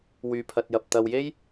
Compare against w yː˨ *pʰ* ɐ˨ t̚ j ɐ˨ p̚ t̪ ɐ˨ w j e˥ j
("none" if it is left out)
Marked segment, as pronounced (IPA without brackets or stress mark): pʰ